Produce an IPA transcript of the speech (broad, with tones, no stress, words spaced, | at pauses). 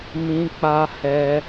mĩ˦k͡pa˦ hɛ˦